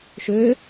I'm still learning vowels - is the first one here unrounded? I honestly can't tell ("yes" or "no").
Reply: no